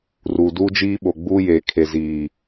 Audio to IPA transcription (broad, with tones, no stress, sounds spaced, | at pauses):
r u˨ d uː˦ d͡ʒ iː˦ ɓ o˨ ɡ͡b uː˦ j eː˨ kʰ e˨ z iː˨